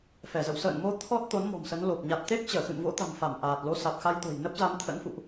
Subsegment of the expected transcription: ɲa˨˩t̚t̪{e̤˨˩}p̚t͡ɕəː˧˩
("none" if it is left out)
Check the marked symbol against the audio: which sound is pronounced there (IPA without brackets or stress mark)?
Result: e˦˥